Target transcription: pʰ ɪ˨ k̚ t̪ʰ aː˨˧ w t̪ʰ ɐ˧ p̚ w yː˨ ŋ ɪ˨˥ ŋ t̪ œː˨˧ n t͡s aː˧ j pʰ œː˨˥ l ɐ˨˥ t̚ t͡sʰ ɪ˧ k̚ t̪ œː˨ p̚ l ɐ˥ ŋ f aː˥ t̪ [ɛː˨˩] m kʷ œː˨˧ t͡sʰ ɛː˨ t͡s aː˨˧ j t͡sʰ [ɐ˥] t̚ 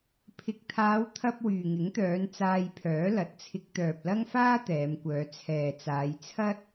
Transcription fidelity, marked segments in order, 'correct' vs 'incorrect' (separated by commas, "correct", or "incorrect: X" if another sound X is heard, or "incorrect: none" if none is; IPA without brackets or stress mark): incorrect: ɛː˨˧, correct